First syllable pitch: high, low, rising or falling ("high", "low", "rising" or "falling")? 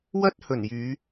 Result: high